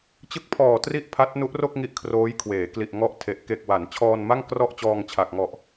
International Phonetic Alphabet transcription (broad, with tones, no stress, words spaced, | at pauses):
t͡ɕɯ˦˥k̚pʰɔː˨˩ tri˥˩ʔpʰa˦˥t̚nu˦˥ʔro˥˩k̚ ŋi˥˩ʔkʰroː˦˥jkʰweː˩˦ kli˨˩ʔŋɔ˦˥ʔtʰe˨˩ʔ ke˨˩k̚wa˩˦n t͡ɕʰɔː˧nma˥˩ŋ krɔ˥˩ʔ t͡ɕɔː˧ŋt͡ɕʰa˨˩k̚ŋɔ˨˩ʔ